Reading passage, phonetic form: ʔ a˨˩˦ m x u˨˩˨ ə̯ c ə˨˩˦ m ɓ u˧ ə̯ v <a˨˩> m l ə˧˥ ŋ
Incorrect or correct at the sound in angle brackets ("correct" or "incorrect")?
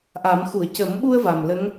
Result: correct